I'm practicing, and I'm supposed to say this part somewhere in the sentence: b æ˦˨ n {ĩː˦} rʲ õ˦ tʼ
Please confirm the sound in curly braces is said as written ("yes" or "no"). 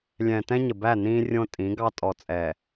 yes